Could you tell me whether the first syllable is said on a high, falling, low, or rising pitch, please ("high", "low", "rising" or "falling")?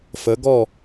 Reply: rising